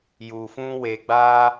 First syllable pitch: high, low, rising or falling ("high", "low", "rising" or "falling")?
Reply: low